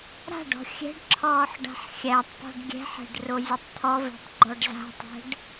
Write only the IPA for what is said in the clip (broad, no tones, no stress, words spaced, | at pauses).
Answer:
ɾa̤ɖɔ̤ xʲɛ̤ɖǁʰɔːħ ɖa̤ħxʲætˤpɔ̤ɖ ɡʲɛ̤ħɛ̤ɖ rozʲotˤt̪ʰɔvɛ̤tˤ ɡ͡ǃɔɖza̤tˤɛ̤ɖ